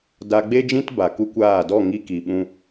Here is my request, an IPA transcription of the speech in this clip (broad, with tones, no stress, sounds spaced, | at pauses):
d a˧ ɡ͡b e˦ d͡ʒ ĩ˦ t b a˨ k u˦ kʷ aː˦˨ d ɔ˦˨ ŋ i˦ k i˨ ɓ ũ˧